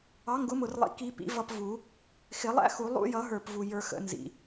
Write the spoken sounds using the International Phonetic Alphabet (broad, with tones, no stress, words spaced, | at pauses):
ɑ˩˥ŋɡʊ˩˥mʊ˨˩rlˠḭ˨˩ ki˨˩˦pḭ˩˥ vʌ˧p vu˨˩˦ | xɪ˨˩˦lˠæ̰˥xu˨˩˦ lˠṵ˧jʌ˨˩˦ɦə˞˨˩p vu˨˩jə˞˧ xə̰˨˩˦nzḭ˨˩